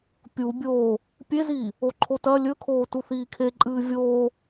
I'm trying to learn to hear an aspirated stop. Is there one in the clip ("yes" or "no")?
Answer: yes